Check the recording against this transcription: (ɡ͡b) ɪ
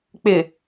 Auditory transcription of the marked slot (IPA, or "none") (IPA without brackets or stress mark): k͡p